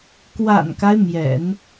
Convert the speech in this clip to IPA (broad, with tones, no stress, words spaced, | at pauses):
kwa̰˨˩nka˦ɪ̯ mjɛ̰˨˩˦n